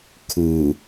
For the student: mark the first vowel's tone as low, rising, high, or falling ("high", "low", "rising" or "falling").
low